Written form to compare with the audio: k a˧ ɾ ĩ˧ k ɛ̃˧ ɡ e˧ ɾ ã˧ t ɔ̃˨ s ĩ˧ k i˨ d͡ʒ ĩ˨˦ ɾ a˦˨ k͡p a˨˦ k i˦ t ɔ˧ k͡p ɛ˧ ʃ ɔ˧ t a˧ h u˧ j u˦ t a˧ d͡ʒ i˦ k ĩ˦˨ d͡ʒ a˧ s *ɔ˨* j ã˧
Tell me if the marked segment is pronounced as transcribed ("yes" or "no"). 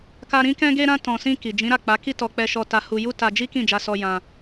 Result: no